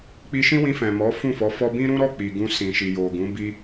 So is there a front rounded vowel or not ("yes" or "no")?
no